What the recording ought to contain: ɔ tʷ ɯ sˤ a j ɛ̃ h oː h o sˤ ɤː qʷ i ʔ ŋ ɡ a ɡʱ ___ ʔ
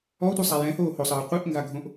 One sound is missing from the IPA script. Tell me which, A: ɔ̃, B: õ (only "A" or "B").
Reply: B